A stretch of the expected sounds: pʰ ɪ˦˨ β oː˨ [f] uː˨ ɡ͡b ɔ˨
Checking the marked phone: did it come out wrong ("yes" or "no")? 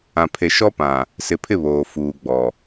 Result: no